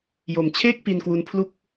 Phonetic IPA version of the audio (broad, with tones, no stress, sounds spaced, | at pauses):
j o˨˩ m t͡ɕʰ eː˥˩ k̚ p i˧ n k w u˧ n pʰ l u˥˩ k̚